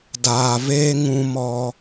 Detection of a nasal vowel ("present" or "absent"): present